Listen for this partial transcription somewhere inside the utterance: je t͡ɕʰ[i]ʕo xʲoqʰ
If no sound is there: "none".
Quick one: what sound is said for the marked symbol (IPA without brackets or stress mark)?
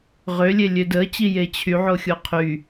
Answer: y